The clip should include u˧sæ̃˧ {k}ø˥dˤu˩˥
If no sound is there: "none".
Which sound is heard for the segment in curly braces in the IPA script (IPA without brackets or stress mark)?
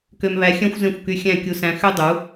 x